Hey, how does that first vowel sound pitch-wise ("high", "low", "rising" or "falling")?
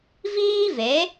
high